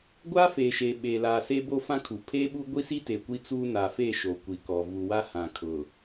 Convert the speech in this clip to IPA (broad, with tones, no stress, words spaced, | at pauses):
ɡʷa˦ feː˨ʃeː˨ ɓeː˨laː˨se˦ bo˦fã˦kʰu˨ pʰeː˦ɓu˦ɡʷi˦si˦ te˨ kʷi˦t͡suː˦ na˨fe˦˨ ʃo˨kʷi˨kɔ˨ vu˨wa˦hã˨ kʰʊ˨